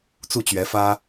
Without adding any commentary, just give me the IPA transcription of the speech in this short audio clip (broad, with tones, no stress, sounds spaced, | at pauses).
t͡s u˥˩ t͡ɕ ɥ ɛ˧˥ f ä˥